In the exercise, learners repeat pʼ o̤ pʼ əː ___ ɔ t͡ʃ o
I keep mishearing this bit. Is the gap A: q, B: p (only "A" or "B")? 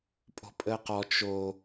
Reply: A